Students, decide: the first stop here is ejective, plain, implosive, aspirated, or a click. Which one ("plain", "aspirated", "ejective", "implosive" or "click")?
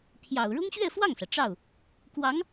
aspirated